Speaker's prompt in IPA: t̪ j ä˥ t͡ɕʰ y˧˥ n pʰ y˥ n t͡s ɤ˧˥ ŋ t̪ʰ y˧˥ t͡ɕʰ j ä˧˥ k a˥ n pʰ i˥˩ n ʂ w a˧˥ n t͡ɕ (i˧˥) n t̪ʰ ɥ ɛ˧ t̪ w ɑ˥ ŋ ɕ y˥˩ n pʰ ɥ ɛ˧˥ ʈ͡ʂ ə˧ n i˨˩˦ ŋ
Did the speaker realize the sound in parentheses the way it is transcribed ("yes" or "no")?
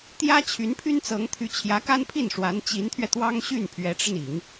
yes